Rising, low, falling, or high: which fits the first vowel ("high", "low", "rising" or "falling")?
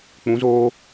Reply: rising